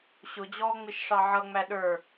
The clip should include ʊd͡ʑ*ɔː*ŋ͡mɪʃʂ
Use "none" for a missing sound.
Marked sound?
ɔː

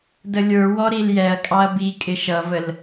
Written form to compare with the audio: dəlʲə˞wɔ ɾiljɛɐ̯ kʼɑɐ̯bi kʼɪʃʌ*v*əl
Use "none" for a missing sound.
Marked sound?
v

